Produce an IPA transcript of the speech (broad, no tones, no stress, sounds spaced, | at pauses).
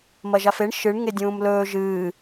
m ɐ ʒ a f e ɳ ʃ ɨ ɳ ŋ e dʲ ũː m l ɵː ʒ ɨː